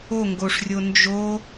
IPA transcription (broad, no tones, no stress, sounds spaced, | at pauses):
o ŋ ɡ o ʂ rʲ o n d͡ʒ o